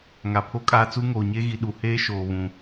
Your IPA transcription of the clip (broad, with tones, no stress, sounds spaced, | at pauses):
ŋ a˨ pʰ o˦ kʼ aː˦ t͡s u˦ ŋ oː˨ ɲ e˦ ɣ i˨ ɗ u˨ h eː˦ ʃ oː˨ β ũ˨